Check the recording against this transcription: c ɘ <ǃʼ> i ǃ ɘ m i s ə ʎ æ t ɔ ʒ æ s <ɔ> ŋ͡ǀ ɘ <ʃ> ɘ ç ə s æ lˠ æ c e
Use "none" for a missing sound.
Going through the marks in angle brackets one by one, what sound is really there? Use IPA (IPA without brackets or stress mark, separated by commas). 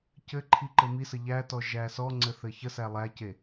ǃʰ, ɔ, θ